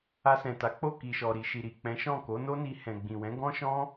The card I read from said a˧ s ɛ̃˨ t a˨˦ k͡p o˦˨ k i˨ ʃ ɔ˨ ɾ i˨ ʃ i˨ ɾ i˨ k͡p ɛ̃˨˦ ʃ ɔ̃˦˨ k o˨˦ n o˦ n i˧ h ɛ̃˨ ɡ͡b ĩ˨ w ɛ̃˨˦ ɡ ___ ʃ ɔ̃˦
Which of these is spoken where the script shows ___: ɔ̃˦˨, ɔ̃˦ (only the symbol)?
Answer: ɔ̃˦